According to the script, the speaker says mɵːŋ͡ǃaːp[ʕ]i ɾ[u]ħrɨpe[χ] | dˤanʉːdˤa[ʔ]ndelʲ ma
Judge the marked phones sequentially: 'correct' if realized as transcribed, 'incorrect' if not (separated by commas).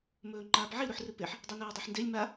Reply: correct, correct, incorrect, incorrect